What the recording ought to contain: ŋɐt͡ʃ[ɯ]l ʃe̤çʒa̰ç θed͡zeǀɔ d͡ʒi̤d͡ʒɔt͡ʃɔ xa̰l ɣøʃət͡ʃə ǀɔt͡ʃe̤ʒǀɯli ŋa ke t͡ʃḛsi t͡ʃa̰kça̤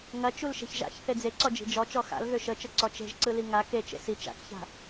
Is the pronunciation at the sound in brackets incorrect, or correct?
incorrect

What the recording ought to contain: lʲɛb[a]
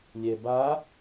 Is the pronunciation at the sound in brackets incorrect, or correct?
correct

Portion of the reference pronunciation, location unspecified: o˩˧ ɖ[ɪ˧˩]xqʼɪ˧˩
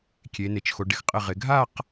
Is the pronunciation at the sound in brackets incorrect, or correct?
incorrect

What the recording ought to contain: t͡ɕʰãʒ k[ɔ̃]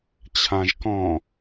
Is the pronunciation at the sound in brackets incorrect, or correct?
correct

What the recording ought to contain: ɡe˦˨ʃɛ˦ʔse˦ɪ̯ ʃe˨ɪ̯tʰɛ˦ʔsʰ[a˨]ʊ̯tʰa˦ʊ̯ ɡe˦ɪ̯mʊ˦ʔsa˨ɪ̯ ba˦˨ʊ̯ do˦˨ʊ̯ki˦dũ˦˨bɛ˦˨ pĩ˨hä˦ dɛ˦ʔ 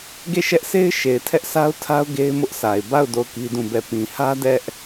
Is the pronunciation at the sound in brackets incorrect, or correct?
incorrect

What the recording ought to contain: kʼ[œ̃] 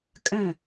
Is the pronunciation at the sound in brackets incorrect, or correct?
correct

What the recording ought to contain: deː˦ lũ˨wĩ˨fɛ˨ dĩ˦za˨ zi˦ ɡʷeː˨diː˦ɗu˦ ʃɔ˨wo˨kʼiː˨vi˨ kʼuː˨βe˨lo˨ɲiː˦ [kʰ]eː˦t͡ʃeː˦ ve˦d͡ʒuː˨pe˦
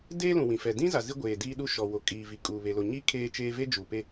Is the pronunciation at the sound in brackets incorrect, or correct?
correct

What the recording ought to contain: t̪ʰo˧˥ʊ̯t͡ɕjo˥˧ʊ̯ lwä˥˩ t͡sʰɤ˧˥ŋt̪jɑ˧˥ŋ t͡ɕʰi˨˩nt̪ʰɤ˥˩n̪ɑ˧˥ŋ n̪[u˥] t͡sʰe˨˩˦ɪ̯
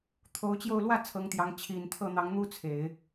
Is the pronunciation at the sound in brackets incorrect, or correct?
correct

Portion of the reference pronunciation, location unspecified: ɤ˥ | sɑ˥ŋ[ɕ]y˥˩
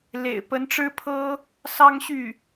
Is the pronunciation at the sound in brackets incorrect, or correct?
correct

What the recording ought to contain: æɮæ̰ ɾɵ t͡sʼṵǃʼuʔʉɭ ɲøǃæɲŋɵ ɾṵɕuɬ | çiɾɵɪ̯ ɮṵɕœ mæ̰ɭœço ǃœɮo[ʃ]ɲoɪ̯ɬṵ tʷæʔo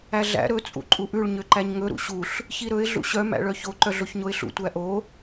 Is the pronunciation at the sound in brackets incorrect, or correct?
incorrect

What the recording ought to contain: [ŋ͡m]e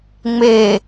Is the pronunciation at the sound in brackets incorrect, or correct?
correct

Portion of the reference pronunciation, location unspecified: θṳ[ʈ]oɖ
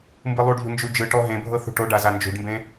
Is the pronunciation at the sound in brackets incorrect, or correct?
correct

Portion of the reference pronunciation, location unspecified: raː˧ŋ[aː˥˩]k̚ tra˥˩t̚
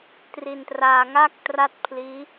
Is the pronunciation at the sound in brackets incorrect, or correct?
correct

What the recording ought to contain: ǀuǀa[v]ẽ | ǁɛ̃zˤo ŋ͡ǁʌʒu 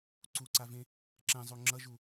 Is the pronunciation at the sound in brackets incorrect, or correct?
correct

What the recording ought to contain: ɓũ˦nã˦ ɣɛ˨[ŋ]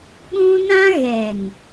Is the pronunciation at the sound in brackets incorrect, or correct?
correct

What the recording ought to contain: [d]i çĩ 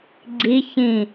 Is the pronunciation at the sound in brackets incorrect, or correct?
incorrect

